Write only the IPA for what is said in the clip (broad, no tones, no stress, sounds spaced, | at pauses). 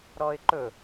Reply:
ɾ ɔ ɪ̯ ǃ ɵ